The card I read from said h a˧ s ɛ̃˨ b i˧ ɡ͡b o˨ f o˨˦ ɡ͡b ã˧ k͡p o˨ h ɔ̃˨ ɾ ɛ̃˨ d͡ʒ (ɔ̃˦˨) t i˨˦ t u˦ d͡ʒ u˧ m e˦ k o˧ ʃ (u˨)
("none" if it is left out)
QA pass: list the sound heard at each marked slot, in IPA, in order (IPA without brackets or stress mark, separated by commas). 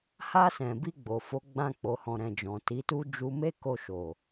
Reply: ɔ̃˨, o˨